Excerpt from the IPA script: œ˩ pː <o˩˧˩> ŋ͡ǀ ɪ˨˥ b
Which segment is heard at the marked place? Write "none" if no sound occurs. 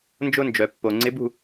o˩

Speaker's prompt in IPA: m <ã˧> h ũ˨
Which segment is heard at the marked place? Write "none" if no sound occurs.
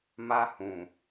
a˧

